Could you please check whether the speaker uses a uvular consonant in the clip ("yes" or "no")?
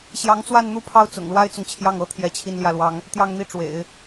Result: no